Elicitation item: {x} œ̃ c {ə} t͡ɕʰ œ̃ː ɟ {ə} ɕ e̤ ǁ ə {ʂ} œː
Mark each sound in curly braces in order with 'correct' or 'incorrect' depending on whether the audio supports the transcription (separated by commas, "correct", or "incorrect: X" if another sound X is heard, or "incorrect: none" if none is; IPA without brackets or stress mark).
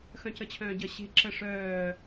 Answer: correct, correct, correct, correct